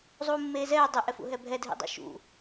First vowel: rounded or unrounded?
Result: rounded